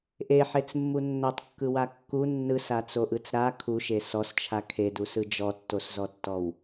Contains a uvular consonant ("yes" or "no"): no